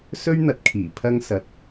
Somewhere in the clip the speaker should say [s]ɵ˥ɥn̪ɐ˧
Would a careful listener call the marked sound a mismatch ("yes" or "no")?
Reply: no